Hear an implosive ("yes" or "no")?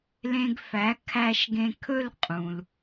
no